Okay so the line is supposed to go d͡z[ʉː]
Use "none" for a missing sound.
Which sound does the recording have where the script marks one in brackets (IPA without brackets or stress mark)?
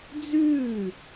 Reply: ʉː